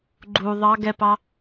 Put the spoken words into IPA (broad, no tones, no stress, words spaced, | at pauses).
ɡ͡ǃu ðˤɑ ɡɛpɑ